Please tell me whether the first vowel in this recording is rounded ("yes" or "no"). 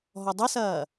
yes